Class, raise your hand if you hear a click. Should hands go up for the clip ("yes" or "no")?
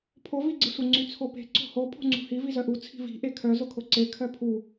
yes